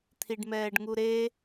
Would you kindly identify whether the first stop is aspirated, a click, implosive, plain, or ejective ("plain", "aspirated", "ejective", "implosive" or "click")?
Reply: aspirated